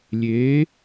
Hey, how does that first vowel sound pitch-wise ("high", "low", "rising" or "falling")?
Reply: rising